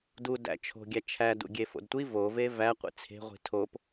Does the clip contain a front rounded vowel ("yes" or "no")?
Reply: no